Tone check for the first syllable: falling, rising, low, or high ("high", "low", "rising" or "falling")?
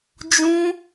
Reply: high